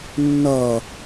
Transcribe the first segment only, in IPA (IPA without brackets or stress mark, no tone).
nː